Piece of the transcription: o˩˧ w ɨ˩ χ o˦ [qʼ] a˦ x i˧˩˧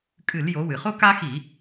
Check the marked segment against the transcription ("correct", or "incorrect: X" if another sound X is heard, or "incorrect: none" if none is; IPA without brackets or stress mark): incorrect: k